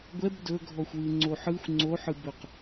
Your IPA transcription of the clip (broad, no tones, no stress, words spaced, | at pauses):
ɡʷɛb dɵɡʱɔxʷwɯŋ͡ǀo ħɯxʷ ŋ͡ǀoħɯbɵq